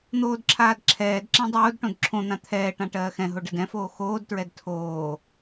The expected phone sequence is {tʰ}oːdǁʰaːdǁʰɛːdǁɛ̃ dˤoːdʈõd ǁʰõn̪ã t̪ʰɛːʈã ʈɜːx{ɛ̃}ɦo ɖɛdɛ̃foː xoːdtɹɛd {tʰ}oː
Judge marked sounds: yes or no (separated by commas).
no, yes, yes